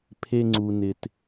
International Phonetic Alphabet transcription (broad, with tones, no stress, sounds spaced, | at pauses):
pʰ e˨ ŋ͡ǀ u˩ n ɪ˩ t